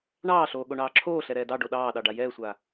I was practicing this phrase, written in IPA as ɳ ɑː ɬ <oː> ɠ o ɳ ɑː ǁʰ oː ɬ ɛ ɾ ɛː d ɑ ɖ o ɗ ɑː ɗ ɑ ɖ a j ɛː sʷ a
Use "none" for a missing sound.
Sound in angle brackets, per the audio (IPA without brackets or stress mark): oː